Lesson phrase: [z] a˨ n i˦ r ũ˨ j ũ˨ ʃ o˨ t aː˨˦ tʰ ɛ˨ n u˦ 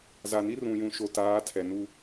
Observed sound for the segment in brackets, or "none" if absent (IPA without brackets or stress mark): z